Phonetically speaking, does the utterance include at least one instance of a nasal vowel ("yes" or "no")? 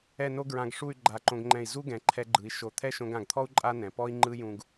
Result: yes